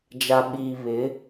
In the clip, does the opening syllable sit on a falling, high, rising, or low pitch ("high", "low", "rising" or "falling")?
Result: low